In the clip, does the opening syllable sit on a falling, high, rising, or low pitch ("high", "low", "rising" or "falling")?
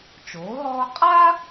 rising